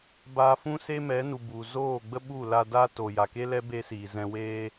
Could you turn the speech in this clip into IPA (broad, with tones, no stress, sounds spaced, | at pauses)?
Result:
b aː˧ f ũ˦ s e˦ m ɛ˨˦ n u˨ b u˨ z oː˦˨ ɡ͡b ə˦ ɓ u˦˨ l a˧ d a˦ t o˨ j a˨ k e˦ l ɛ˦ b e˦ s iː˨ z ɛ̃˧ w eː˧